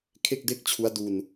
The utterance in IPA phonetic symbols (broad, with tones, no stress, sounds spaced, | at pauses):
kʰ e˥˩ k̚ d e˥˩ k̚ t͡ɕʰ u˦˥ a̯ d u˧ n